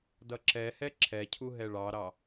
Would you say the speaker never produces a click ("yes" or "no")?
no